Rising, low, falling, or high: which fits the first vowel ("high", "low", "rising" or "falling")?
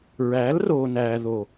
rising